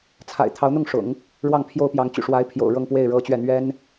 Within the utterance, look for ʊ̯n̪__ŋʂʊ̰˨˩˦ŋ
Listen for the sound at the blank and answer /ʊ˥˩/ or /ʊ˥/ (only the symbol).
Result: ʊ˥˩